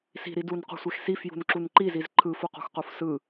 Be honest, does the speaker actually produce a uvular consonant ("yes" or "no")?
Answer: yes